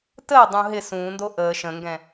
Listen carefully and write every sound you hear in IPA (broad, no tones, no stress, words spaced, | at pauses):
təː dˤũɦɪ sũːndo ʔəː ʃə̃ŋɡɛ̃